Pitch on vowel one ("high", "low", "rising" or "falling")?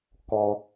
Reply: high